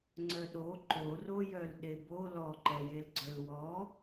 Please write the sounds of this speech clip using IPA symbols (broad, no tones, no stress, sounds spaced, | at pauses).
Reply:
ŋ͡ǀ œ ɗ o ǃ o r o j œ l ɗ e b o l ɔ ǃ ɛ j e l ɡ͡ǀ œ l w ɔ